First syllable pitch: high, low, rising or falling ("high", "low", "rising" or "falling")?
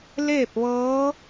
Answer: falling